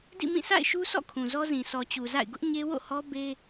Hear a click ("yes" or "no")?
no